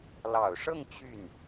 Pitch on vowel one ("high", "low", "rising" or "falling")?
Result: low